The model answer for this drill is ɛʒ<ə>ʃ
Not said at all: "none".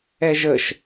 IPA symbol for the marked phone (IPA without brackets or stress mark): ə